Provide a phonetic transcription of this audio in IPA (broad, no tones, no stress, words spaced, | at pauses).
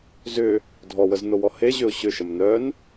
zʏ | dʱɔwəznowɔ heʑʏʊ̯ ɕʏʃəm nœn